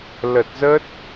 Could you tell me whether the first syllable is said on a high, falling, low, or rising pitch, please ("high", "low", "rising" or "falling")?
low